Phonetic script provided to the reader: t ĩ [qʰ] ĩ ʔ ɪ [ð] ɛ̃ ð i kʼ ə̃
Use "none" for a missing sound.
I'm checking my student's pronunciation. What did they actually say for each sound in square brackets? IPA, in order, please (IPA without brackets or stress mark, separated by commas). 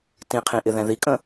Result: qʰ, ð